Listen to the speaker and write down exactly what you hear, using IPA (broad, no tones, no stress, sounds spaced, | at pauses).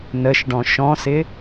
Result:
n ə ʃ ɖ ɔ̃ ʃ ɔ̃ s ɪ